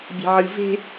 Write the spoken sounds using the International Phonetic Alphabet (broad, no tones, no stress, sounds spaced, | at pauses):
bʲ e̤ ʕ ɨ v e̤